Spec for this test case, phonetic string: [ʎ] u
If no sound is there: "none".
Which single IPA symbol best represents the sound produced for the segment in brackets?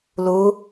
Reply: l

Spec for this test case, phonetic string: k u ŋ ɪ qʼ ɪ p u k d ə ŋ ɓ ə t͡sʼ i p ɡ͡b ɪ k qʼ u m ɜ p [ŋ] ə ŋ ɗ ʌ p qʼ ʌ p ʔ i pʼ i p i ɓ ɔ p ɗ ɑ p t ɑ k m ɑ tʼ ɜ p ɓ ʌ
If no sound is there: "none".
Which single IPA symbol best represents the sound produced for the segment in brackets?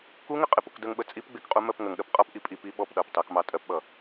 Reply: ŋ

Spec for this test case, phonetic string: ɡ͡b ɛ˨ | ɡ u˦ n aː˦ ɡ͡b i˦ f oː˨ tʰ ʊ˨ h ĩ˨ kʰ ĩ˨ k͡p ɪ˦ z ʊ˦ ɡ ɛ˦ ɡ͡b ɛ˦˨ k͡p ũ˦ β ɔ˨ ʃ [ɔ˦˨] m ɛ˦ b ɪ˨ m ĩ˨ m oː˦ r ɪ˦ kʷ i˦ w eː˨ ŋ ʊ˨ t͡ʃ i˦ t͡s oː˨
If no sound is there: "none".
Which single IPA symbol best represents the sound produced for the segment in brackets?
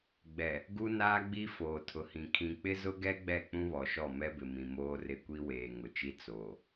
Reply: ɔ˦˨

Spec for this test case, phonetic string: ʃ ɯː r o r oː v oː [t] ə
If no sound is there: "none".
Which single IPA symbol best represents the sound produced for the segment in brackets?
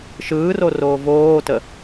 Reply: t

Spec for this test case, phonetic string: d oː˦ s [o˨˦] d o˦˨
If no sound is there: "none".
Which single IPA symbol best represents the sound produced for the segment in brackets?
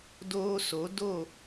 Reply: o˨˦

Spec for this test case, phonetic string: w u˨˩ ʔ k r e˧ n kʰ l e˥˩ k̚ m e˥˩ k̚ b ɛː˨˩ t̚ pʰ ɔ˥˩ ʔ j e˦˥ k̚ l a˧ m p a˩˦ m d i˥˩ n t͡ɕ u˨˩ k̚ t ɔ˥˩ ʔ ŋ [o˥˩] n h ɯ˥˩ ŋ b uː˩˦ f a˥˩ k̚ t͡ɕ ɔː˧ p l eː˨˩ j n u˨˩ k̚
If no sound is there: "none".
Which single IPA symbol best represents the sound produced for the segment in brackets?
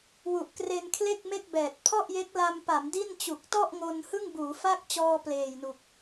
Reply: o˧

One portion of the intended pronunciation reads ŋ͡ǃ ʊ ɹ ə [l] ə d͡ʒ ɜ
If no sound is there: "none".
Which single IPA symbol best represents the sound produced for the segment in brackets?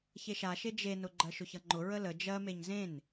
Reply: l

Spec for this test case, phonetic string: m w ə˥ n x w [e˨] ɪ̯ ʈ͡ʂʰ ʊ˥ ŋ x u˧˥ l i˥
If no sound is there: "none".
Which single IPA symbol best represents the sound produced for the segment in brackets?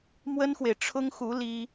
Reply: e˨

